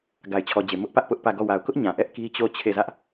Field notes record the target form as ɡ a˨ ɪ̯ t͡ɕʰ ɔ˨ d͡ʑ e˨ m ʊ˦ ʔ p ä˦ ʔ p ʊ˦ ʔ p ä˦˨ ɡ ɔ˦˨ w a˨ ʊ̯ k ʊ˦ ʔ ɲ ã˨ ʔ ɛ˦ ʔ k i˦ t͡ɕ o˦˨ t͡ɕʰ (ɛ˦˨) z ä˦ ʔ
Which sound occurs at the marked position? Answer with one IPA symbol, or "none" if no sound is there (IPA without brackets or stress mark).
e˦˨